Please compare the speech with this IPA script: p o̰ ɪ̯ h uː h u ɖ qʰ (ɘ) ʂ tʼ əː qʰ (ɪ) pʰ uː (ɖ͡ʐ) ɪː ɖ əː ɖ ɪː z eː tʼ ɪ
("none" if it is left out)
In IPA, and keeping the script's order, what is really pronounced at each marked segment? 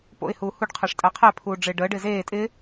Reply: ɛ, ɛ, ɖ͡ʐ

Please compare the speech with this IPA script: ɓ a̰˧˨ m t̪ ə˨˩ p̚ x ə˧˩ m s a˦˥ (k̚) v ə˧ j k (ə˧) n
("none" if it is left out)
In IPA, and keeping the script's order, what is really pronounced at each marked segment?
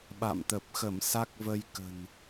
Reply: k̚, ə̤˨˩

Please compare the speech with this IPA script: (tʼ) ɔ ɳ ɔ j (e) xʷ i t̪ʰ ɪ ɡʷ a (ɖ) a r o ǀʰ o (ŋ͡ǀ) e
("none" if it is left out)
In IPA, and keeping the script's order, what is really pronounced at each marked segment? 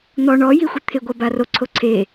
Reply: n̪, i, b, ǀʰ

